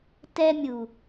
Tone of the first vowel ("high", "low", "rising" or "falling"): high